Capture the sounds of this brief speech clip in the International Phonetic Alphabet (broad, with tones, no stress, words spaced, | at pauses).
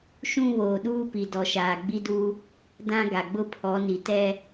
ʃũ˦βoː˨ɗuː˦pi˨ dɔ˨ʃaː˨ɡ͡bi˦du˦ | dã˦ ɡa˨ɡ͡bʊ˦pʰɔ˨˦ ni˨tɛ˦